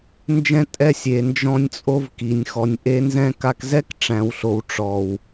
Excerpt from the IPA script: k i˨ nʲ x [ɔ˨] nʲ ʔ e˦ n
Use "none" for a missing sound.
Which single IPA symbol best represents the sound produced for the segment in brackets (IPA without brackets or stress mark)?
ɔ˨